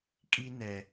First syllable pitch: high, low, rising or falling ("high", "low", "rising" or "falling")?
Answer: high